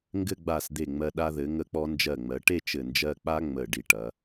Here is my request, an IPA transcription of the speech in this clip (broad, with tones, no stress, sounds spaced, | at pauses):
ŋ ɡ ɘ˥˧ ɡ͡b a˧˩ s d̪ e˧˩ ŋ͡m ɜ˧ ɗ a˧ ð ɘ˩˧ ŋ ə˧ k͡p ɔ˧ n d͡ʒ ɜ˧˩ ŋ͡m ɜ˩˧ ʈ e˥˧ t͡ʃ ɘ˧˩ n d͡ʒ ɜ˥˧ k͡p a˥ ŋ͡m ə˧˩ ɖ i˧˩ ʈ ɐ˩˧